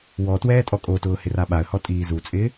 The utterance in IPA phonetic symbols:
w ɔ t w ɛː tʼ ɔ kʼ o t ʊː h ɪ r a ɓ a ə̯ h ɔ tʼ iː z u t͡sʼ ɪː

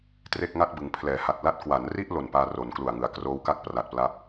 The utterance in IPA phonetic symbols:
t r e˥˩ k̚ ŋ a˥˩ t̚ b ɯ˩˦ ŋ pʰ l ɛː˩˦ h a˨˩ t̚ l a˥˩ t̚ k w a˩˦ n r i˥˩ ʔ l o˨˩ n p aː˧ r o˩˦ n k l u˨˩ a̯ ŋ ɯ˩˦ a̯ k r oː˦˥ w k a˥˩ k̚ p r a˨˩ t̚ p l a˦˥ p̚

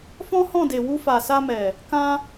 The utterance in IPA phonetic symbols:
f ɔ̃˦ h ɔ̃˦˨ d e˨ w u˧ f a˨ s a˧ m ɛ˨ | k ã˧

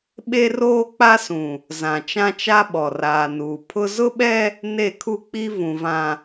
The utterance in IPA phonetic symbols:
ɓ e˦ r oː˦ k͡p a˦ s ũ˨ | z ã˨ t͡ʃ ã˦ t͡ʃ a˦ ɓ ɔ˨ r aː˨ n uː˨ pʰ ʊ˦ z ʊ˦ ɓ ɛ˦ | n e˦˨ kʰ u˦ k͡p i˦ v ũ˨ v ã˨

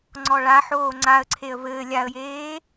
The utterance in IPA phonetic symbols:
ŋ͡ǀ ɔ ɭ a ħ oː ŋ͡ǀ a ə̯ ǀʰ e ə̯ v ɘː lʲ a ə̯ j eː

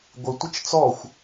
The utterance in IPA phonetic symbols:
ɡʷ ɪ tʷ ə t͡ʃ t͡s ɔ xʷ

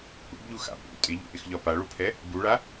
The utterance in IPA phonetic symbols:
ʔ ṵ b ʎ u x a̰ p ṵ tʼ ɪ ʎ ṵ ʔ ɪ x ʎ ɒ p a ɭ u pʰ ɛ | b u ɭ a

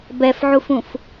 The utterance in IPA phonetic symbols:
b ɛ f ʕ u f ũ f

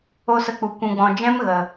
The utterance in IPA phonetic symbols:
o˦ s ə˧ k͡p u˨ kʷ ũ˧ ɡ͡b ɔ̃˧ d͡ʒ ɛ̃˦ m ɣ ə˨

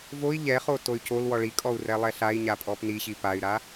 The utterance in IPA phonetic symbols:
v o i̯ ʎ ɛ χ o t o y̯ c o l w ɔ ɭ i kʼ ɔ u̯ r ɛ lˠ ɛ ɬ a i̯ ɲ a pʼ ɔ p n i ɕ i p a y̯ ɾ a

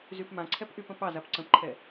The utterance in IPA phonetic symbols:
z y p m ã ǀʰ ɛ p ʔ y p ə̃ p ɑ z a p ǀ ə̃ p ǃʰ ɛ

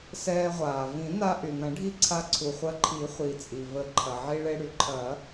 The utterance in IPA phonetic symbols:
s ɛː˧ ʁʷ aː˩ v ĩ˨˩˦ n a˧ ʔ y˩ n ɐ̃˨˩˦ ɖʱ i˧ ǀʰ a˧ ǀʰ u˩ χʷ ɐ˧ ǃʰ i˨˩˦ χʷ i˩ t͡sʼ i˩ v ə˩ ǃʰ ɐ˩ ʕ i˧ ɭ e˧ ɽ y˩ ǃʰ ɐ˨˩˦

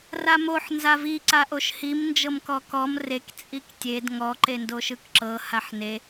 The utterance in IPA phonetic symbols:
r a m o ħ n z a v i ǀ a ʔ o ʃ h i m n d͡ʒ ɤ m k ɔ k ɔ m r e k t͡sʼ i k tʲ e d ŋ ɔ ǃ e n d o ʃ ɯ k ǁ ɤ h a ħ n e

